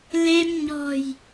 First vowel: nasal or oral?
oral